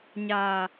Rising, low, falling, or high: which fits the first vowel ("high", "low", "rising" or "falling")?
low